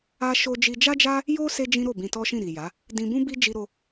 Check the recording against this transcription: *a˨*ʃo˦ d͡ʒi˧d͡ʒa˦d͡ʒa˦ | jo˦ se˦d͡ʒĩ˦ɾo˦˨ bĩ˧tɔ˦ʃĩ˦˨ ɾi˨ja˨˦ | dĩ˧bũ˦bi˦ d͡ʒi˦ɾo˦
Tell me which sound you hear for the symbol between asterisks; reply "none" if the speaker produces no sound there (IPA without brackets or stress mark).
a˦